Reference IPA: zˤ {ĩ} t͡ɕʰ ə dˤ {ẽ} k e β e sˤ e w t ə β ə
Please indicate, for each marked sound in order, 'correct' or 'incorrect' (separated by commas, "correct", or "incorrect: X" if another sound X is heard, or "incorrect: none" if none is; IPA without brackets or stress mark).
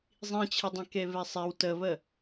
correct, correct